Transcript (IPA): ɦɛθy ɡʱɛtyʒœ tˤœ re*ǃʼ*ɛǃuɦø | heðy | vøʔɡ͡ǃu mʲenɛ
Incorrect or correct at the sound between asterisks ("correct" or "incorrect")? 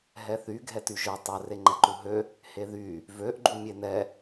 incorrect